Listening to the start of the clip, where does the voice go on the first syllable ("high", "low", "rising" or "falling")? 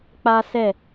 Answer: high